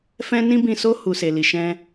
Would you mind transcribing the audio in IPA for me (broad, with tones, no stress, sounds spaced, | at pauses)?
f ɛ̃˦ n ĩ˦ b ĩ˧ s o˦ h u˦ s e˧ l i˧ ʃ ɛ̃˦